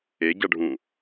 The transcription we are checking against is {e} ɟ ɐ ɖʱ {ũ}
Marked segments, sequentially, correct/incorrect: correct, correct

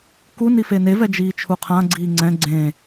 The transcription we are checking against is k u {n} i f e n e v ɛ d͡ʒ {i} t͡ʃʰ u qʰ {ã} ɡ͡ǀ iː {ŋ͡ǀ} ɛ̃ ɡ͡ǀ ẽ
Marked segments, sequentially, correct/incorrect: correct, incorrect, correct, correct

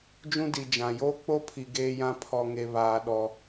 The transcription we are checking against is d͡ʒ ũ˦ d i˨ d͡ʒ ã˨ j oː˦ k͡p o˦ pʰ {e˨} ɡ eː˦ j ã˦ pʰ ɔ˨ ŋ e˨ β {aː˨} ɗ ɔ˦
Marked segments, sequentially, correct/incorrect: incorrect, correct

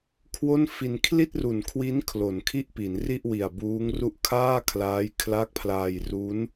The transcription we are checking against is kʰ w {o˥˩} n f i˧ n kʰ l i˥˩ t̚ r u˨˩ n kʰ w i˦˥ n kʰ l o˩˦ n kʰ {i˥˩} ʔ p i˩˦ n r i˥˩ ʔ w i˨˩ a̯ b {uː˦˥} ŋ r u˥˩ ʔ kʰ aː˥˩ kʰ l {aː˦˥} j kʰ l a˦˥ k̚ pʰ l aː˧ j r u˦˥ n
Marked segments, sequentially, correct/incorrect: correct, correct, correct, correct

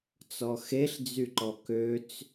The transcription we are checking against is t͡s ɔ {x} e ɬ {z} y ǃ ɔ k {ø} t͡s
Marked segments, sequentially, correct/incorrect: correct, incorrect, correct

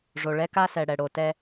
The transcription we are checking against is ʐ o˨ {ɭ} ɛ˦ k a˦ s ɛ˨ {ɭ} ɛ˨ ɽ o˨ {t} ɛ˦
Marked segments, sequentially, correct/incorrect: correct, incorrect, correct

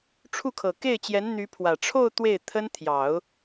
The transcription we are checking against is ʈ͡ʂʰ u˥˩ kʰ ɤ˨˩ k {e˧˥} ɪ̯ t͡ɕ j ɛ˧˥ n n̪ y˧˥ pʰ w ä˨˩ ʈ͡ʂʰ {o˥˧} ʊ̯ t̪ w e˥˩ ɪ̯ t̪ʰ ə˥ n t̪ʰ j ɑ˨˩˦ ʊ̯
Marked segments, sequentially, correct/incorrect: incorrect, correct

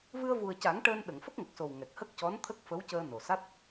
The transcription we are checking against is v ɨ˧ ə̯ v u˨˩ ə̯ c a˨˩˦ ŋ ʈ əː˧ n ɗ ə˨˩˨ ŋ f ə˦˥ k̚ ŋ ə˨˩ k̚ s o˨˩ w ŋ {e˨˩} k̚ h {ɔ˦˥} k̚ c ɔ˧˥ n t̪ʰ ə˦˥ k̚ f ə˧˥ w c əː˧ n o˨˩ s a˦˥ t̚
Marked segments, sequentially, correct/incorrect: incorrect, incorrect

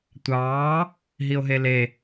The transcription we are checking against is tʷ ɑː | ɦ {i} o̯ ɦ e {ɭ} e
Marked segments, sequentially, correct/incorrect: correct, incorrect

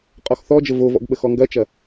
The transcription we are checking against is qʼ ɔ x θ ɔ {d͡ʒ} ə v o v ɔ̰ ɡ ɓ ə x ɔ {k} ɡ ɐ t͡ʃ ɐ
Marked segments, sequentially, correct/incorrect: correct, incorrect

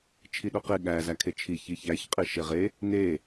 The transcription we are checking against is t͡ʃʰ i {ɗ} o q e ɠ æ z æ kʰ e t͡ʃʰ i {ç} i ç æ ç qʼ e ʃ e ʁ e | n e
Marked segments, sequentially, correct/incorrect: correct, correct

